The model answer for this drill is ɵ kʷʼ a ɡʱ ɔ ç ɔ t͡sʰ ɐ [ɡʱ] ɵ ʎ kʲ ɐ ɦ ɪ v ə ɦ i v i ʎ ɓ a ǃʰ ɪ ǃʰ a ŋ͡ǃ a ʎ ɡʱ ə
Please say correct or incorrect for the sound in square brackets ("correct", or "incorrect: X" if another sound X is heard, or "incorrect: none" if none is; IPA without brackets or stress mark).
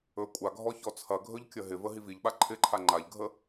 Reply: correct